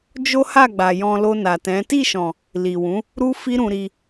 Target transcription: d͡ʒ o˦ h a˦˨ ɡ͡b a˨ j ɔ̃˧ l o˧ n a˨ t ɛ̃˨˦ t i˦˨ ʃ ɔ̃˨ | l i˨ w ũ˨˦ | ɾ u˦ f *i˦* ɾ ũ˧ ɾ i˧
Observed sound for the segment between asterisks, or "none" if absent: i˦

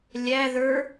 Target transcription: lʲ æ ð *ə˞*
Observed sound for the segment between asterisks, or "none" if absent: ə˞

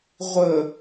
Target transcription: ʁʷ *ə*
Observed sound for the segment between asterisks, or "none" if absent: ə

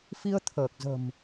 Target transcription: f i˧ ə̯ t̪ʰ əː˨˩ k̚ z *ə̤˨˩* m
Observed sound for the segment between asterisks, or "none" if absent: ə̤˨˩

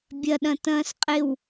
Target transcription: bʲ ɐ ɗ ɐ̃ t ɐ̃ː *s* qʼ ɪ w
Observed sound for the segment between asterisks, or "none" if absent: s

